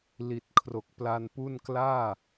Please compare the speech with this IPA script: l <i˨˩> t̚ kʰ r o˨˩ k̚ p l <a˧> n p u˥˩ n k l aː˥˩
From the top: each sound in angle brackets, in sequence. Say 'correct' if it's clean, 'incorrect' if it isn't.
correct, correct

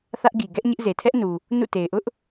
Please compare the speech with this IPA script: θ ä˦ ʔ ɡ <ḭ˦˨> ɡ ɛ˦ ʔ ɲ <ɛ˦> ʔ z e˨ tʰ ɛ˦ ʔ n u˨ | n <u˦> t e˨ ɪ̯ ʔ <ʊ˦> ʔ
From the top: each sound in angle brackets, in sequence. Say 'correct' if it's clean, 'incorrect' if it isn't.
incorrect, incorrect, incorrect, correct

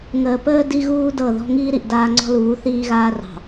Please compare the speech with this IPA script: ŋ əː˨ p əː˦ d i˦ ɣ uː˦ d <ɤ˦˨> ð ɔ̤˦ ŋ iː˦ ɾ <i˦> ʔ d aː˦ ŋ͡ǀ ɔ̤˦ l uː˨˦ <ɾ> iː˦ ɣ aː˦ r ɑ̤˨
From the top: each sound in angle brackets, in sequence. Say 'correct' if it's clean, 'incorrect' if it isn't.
correct, incorrect, incorrect

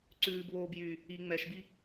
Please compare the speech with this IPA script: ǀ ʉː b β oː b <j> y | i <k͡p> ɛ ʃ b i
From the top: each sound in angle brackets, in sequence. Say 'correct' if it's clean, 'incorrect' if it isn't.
correct, incorrect

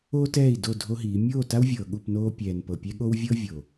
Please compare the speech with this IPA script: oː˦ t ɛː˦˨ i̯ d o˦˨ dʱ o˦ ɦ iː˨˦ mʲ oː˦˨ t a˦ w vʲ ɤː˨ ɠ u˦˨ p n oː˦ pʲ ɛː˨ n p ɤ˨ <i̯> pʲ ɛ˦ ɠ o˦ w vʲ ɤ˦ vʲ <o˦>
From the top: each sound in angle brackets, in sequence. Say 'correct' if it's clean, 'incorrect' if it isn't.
incorrect, incorrect

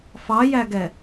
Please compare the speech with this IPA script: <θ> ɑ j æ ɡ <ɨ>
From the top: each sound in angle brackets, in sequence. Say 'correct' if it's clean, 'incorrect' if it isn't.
incorrect, incorrect

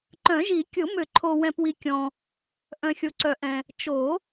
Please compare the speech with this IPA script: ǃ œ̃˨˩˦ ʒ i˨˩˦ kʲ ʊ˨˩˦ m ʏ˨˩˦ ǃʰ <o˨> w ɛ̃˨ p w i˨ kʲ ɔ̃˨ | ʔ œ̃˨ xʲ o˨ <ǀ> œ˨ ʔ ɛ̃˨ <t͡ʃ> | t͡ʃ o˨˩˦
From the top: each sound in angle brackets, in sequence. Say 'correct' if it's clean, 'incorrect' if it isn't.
correct, correct, incorrect

